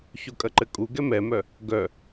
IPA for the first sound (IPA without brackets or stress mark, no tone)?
ç